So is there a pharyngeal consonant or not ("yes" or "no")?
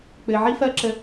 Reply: yes